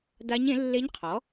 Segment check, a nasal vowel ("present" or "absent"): present